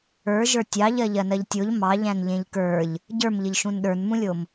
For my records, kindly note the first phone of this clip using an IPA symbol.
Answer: ə˞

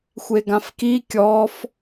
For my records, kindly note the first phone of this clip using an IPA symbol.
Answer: xʷ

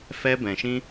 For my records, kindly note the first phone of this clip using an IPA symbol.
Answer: f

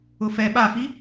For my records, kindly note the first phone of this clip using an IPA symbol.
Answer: ʊ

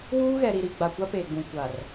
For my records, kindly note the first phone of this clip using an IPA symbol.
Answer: w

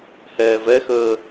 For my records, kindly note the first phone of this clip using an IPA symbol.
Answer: h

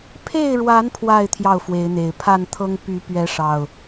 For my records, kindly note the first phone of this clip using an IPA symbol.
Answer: pʰ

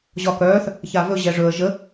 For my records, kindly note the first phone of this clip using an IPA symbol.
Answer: ʑ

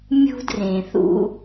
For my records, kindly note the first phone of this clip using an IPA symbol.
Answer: mʲ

